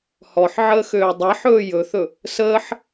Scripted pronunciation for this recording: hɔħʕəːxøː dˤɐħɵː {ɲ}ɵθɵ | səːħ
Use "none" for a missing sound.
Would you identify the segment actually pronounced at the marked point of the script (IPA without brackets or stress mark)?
j